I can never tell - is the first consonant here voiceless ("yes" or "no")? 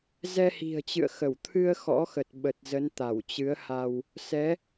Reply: no